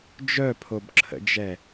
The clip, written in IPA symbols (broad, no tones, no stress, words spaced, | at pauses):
d͡ʒœpʰobǁʰə̰d͡ʒɛ